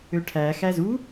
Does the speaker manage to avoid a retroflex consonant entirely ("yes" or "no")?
no